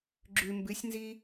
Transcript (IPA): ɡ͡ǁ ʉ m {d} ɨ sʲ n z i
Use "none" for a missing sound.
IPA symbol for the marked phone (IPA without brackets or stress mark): b